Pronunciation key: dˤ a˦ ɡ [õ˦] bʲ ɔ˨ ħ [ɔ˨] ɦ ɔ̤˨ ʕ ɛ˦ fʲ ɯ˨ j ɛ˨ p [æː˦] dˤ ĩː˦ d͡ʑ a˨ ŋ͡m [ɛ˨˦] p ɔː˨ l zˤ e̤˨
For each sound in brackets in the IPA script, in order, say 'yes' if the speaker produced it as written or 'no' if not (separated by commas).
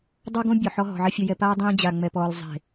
yes, no, no, no